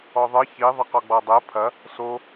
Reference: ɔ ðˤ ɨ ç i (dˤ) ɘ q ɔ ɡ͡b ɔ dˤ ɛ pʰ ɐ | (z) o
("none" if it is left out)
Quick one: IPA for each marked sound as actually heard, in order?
ðˤ, s

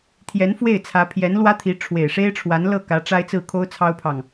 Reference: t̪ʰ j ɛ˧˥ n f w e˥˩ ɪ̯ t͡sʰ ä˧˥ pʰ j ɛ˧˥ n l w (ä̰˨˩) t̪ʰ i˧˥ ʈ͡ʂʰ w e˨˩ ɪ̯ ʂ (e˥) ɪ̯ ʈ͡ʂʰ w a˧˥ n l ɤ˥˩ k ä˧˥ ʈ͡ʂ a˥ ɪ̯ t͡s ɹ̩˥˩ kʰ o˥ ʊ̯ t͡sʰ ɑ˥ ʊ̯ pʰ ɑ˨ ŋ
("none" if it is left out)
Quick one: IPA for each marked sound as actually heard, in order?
ä˥, e˥

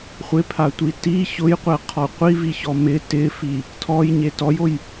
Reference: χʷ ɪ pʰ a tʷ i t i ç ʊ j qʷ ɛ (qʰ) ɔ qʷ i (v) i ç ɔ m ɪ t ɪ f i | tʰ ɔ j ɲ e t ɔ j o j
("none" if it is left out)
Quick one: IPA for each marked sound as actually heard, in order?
qʰ, v

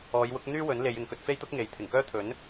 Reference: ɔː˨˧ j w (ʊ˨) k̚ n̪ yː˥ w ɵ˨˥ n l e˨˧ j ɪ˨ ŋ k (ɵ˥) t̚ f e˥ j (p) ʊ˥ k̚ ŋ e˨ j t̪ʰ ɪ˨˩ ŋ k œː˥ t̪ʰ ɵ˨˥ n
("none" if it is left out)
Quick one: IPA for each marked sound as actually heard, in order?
ʊ˨˥, ɵ˧, t̪

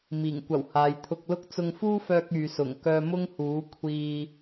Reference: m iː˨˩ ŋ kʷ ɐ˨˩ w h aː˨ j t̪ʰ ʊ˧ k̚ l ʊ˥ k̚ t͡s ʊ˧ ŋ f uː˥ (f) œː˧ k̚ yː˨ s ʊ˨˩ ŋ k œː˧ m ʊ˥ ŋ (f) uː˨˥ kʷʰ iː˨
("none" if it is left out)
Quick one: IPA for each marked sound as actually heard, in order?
f, h

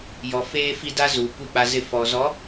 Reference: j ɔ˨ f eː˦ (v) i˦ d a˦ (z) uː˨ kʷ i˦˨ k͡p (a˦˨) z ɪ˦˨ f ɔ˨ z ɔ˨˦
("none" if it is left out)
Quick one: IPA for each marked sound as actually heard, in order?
f, z, a˦

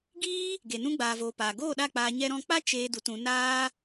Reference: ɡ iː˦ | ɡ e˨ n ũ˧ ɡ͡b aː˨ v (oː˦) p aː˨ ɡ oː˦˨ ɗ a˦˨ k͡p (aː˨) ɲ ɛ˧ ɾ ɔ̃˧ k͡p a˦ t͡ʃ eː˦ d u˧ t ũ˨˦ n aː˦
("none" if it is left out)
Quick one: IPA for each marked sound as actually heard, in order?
oː˨, aː˧

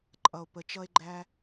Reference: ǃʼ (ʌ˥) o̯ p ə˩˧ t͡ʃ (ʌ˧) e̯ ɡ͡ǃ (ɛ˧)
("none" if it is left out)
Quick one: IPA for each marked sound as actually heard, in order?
ʌ˩, ʌ˧, æ˧

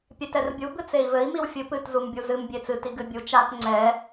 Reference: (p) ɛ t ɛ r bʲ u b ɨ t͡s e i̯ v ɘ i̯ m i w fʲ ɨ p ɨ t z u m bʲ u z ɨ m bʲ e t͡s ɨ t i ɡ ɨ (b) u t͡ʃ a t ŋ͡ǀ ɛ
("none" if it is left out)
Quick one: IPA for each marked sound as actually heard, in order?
pʲ, bʲ

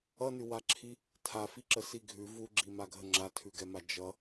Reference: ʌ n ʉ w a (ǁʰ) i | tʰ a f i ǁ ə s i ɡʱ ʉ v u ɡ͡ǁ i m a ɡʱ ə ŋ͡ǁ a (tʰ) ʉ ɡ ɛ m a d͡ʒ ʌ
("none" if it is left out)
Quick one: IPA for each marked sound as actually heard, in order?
ǁʰ, tʰ

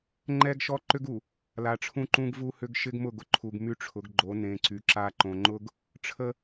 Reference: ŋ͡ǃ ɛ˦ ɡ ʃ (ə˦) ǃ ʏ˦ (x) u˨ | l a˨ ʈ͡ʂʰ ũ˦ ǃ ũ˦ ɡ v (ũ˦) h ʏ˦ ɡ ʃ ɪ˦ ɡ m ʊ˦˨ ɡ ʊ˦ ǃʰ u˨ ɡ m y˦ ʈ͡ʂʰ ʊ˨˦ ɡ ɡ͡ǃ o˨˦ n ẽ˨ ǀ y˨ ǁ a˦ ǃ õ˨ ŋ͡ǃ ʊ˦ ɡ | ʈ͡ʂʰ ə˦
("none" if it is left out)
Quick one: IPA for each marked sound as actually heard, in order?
ɔ˦, ɡ, u˦

